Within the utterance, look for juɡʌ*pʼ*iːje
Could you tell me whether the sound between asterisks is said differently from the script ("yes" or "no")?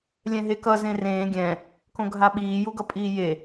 no